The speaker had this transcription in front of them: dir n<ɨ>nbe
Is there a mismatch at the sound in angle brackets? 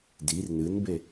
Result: no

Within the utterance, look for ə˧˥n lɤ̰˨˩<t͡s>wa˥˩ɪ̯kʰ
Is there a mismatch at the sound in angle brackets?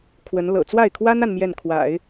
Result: no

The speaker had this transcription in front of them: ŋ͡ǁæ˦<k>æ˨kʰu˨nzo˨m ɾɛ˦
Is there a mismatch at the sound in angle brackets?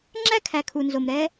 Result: yes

